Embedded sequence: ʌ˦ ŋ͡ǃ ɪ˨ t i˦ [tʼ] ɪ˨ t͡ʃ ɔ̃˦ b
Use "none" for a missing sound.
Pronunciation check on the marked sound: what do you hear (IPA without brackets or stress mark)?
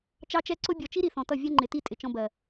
tʼ